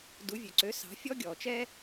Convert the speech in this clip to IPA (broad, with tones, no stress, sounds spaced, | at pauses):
d u˩˥ vʲ ø˩ ǀ ø˩˥ s ɑ̤˩˥ fʲ ɔ˧ ɡʲ ɔ˩ t͡ʃ ɛ˧